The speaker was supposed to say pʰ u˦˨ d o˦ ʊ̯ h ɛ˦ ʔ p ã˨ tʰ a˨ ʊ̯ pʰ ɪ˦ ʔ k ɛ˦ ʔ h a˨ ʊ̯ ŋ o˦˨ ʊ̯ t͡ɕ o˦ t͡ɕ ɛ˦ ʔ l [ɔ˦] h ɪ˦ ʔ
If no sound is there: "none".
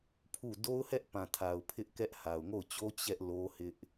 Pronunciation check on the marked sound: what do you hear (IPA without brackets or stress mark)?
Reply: o˦